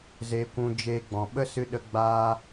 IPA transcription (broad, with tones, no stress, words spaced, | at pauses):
ze˧kʷũ˧d͡ʒeː˧ ɡ͡bɔ̃˨ɓə˦sɨ˧ɗə˧ ɡ͡baː˧